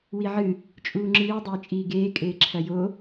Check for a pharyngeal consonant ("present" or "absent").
present